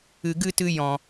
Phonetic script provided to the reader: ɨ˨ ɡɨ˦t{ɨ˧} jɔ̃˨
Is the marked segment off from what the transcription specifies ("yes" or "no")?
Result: no